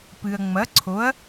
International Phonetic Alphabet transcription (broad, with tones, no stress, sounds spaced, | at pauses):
p ɨ˨ ɐ̯ ŋ͡m ɐ˨˥ ǀʰ o˨˥ ɐ̯